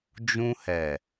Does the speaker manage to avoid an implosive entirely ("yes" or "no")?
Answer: yes